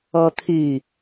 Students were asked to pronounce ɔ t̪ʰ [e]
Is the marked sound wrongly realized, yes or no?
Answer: yes